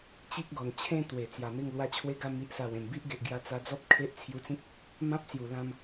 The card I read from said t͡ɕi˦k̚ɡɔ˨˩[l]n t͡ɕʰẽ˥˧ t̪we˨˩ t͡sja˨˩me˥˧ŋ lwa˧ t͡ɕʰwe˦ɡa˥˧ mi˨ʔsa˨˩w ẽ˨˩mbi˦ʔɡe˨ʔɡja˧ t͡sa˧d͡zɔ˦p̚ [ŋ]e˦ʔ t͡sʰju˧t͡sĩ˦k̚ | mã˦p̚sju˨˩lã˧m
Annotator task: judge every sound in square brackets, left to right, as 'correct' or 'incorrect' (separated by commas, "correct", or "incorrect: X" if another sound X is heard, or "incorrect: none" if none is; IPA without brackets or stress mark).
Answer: incorrect: none, incorrect: kʰ